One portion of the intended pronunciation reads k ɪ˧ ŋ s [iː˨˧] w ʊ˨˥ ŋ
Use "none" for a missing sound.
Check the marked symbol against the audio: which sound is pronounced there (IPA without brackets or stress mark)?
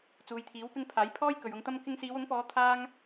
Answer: iː˨˧